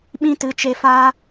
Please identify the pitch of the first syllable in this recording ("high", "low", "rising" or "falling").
high